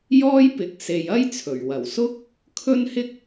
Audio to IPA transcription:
j ɔː˥ j p ɪ˨˥ k̚ s e˨ j ɐ˥ j t͡sʰ ɵ˨˩ ɥ w ɐ˨˩ w s ʊ˥ k̚ | kʰ ɵ˥ n h ɪ˥ k̚

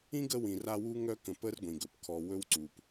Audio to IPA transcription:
ĩ˥ ɡ ə˦ w ĩ˨ r a˦ w u˥ ŋ œ˦ k ə̃˨ p ə˦ r ɡʷ ĩ˩ ɡ ɵ˩ p kʰ ɔ˨ w ɵ˦ w ǀ u˨ p

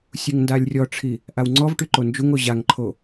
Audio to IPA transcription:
sʲ u ŋ n d a lʲ rʲ ɔ ʈ͡ʂʰ i | ʔ a w ŋ͡ǀ ɔ v ʈ y ǃ o n d͡ʒ u ŋ o ʑ a ŋ ǃʰ o

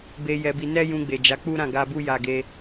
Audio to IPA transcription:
b e˧ j ɛ˧ b i˧ n ɛ˦ j ũ˧ ɡ͡b e˨ d͡ʒ a˨˦ k͡p u˦ ɾ ã˦˨ ɡ a˧ b u˦ j a˧ ɡ e˧

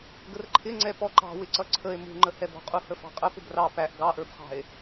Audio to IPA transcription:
ɡ ə r ǃʰ ɪ ŋ͡ǀ ɛ p ɔ ǃ ɑ̤ w ɪ ǀ ʌ ǀʰ ə e̯ m ṳ ŋ͡ǃ ə h ɛ b ɔ̤ qʼ u h ə f ɑ̤ qʼ ə p ʊ b r ɑ p æ ʔ ɡ ɑ ʔ ə˞ b χ ɑ̤ e̯

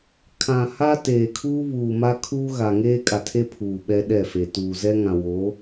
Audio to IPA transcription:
kʰ ã˨ h a˦ t eː˨ kʰ uː˦ β uː˨ m a˦ kʰ uː˦ ɣ a˨ ŋ eː˦ kʼ a˨ tʰ e˦ pʰ uː˨ ɓ ɛ˦ ɗ ɛ˦˨ f e˨ t uː˨ z ɛ˦ ŋ ã˨ w o˨˦

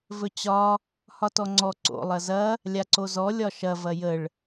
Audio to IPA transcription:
v ɵ t͡ɕ ɒ | h ɒ t ɔ ŋ͡ǀ ɔ ǀ o̰ lˠ ɐ z ɐ | lʲ a ǀ o z ɔ lʲ ɒ ʃ ɐ v ɐ j ə ɭ

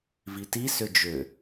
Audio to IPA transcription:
v i t i s ʏ d͡ʒ ʏ

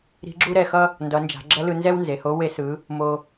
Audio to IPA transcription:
ɾ i̤˧˥ ɡ͡ǁ u˥ ɾ ɛ˧ x ʌ˥ | n d ʌ˩˧ n d͡ʒ a̤˩˧ ɡ͡ǁ ʌ˧˥ l ɯ˧ n z ɛ˥ w n z e˩ h o˧˥ w e˧ s ɯ˩˧ | m o˧

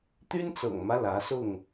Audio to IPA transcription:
t̪ y˦ n t͡s ɤ̰˨˩ ŋ m ä˦ l ä˨˦ s ʊ˥˨ ŋ

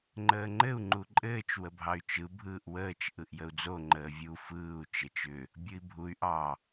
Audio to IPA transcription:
ŋ͡ǃ əː ŋ͡ǃ ɘ u̯ ŋ͡ǃ u ǃʼ ɘː t͡ʃ w ə bʱ ɑ y̯ t͡ʃ ɯ bʱ ɯː ʔ w əː t͡ʃ ʔ ɯ ʔ j ə u̯ d͡z o ŋ͡ǃ əː vʲ u f ɯː u̯ t͡ʃ ə t͡ʃ ʏ | bʲ ɯ i̯ bʱ u y̯ ʔ ɑ

